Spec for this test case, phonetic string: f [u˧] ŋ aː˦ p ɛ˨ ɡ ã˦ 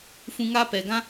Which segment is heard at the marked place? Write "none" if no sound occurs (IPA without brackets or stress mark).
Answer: ũ˧